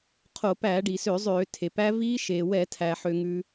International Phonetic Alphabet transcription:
qʰo˧˩˧pæː˧˩˧ɖi˩sø˧˩˧ zˤøː˧˩˧tʰe˩pæ˦˥ viː˦˥ ʃeː˩wɛ˧˩˧ tʰæ˩ħø˩ŋʉ˩

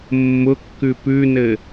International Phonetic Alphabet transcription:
mːʊkːʉ pʉnɘ

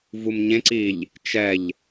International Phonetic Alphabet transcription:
vumɲẽǀiʎ | t͡ʃɛʎ

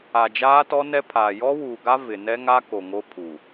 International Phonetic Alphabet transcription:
a˨d͡ʒaː˦tɔ˦ nɛ˦pʰaː˨ jɔ˦wuː˨ɡa˦ vɪ˨nɛ˦ŋa˦ ko˨ŋo˦pʰu˨

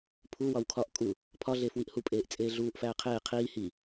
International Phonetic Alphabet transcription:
pʰu wɒwkʰɒʔ kʼu | pʰɒɮeːfwiʔ hu pʼeːʔt͡sʼeːɮuːʔ fæːqʰeː qʰiː hi

